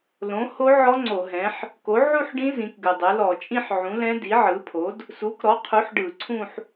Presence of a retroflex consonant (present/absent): present